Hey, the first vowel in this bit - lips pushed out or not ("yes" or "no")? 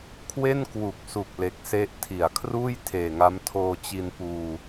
no